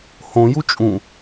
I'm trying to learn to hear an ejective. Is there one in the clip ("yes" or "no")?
yes